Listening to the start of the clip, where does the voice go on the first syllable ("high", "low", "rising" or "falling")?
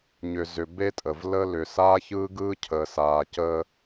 low